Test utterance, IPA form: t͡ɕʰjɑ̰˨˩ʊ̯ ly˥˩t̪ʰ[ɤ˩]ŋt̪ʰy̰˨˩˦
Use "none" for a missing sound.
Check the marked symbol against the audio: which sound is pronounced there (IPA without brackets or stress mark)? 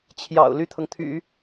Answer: ɤ˩